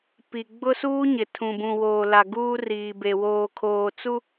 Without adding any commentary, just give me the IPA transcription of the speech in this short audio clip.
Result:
p i˨ ɡ͡b ʊ˦ s uː˦ ɲ ɪ˨ tʰ ũ˨ b ũ˨ w oː˨ l a˨ ɡ uː˦ r iː˨ b e˨ w oː˨ kʰ oː˨ t͡s u˦

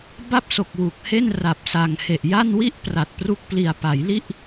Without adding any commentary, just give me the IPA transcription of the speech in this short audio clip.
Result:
b a˥˩ p̚ s o˨˩ k̚ w u˨˩ k̚ h e˥˩ n r a˨˩ p̚ s a˨˩ ŋ h e˨˩ ʔ j a˥˩ n w i˥˩ ʔ p r a˨˩ t̚ p r u˦˥ k̚ p l i˨˩ a̯ p a˩˦ j l i˥˩ ʔ

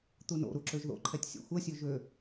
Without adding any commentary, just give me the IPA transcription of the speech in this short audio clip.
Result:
t̪ u n o̰ ɾ u ǁ ø ʒ ð o̰ ǃʰ ɛ tʲ sʲ ɛ̰ xʷ ɛ sʲ ø ʒ ø

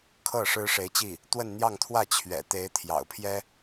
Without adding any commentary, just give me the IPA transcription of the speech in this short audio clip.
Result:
kʰ ɤ˥˩ ʂ ɻ̩˥ ʂ e˧˥ ɪ̯ t͡ɕ i˥˩ | t̪ w ə˥˧ n n̪ j ɑ˥˧ ŋ t̪ʰ w ä˥˩ t͡ɕʰ ɥ ɛ̰˨˩ t̪ e˧˥ ɪ̯ t̪ʰ j ɑ̰˨˩ ʊ̯ pʰ j ɛ˥

